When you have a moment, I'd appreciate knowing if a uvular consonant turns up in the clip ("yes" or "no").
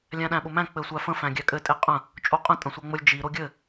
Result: yes